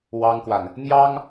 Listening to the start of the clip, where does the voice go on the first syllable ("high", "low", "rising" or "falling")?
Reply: high